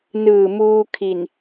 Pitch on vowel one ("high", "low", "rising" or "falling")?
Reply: low